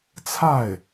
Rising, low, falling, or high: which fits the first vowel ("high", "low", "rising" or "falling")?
falling